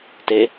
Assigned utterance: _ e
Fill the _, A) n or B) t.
B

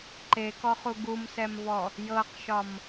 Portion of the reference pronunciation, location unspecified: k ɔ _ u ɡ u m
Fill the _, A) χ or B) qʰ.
A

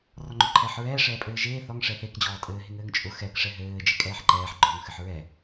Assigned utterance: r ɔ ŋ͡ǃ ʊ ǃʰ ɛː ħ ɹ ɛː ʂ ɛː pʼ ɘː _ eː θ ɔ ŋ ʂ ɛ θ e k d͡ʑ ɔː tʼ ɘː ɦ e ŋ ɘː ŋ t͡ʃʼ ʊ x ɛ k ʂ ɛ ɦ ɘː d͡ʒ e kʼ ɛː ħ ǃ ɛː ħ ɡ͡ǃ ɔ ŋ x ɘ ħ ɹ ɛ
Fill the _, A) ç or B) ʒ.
B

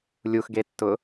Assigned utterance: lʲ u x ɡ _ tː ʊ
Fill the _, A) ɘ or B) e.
B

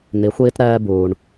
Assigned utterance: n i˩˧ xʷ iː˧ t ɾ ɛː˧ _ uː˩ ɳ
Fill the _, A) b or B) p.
A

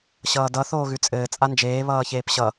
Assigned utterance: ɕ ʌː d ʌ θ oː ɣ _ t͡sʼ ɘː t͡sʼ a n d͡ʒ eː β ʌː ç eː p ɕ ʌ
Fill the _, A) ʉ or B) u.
A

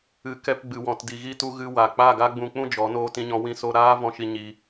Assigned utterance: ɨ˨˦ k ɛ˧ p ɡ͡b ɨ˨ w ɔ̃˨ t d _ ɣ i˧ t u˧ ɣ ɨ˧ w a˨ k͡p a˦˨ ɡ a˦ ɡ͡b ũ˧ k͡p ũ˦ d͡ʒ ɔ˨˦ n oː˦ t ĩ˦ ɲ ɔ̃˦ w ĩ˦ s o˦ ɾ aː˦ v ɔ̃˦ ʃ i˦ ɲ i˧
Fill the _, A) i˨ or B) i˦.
A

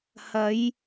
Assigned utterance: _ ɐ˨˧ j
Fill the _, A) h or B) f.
A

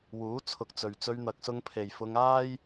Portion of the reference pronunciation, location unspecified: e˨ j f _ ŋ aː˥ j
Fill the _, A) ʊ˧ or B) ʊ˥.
A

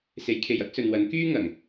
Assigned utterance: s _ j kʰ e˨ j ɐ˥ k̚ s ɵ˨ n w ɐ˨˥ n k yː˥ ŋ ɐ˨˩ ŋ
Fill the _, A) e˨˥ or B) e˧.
A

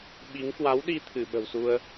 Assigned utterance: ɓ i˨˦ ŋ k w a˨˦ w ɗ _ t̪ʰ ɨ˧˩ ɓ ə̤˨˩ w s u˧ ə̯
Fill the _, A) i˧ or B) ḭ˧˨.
A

